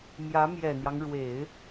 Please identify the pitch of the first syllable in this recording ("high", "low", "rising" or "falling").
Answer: rising